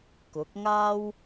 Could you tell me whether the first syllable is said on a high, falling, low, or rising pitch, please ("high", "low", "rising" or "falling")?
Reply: rising